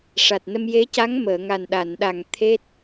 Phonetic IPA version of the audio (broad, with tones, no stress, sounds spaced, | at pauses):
ʂ a˨˩ t̚ n ə˧ m j e˧˥ c a˧˥ ŋ m əː˨˩˨ ŋ a˨˩ n ɗ a˨˩˨ n ɗ a˨˩ ŋ t̪ʰ e˦˥ t̚